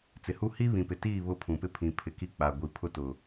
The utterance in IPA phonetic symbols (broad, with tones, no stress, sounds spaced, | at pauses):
t͡s ɪ˨ h u˦ h i˦ β ĩ˨ p ɪ˨ t iː˦˨ β ʊ˦ pʰ ũ˨ p ɪ˦ pʰ ĩ˨ pʰ ɪ˨ k i˦ k͡p a˨ ɡʷ i˨ pʰ ʊ˦ t ʊ˨